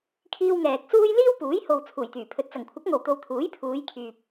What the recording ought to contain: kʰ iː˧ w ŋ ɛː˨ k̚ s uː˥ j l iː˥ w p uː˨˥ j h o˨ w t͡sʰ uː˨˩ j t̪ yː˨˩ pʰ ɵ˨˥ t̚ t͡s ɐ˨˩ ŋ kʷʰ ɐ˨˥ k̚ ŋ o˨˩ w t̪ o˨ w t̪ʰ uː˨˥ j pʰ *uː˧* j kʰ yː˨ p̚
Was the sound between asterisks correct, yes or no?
no